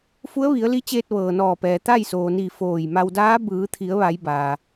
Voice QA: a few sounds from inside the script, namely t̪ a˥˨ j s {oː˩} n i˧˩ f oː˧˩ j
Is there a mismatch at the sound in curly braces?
no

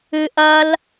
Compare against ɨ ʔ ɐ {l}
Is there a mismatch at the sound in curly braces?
no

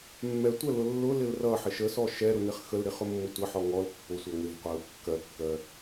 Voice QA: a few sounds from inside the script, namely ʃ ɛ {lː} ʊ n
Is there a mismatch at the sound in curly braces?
yes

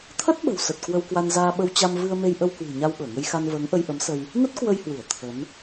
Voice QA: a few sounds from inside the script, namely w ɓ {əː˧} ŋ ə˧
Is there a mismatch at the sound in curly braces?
yes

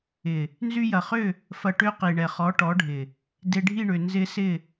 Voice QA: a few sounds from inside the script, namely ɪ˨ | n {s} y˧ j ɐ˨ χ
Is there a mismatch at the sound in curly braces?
yes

